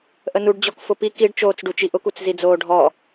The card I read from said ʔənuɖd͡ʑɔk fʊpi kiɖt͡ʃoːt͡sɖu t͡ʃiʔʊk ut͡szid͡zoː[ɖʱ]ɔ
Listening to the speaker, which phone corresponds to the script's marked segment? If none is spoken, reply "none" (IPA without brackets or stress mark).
ɖʱ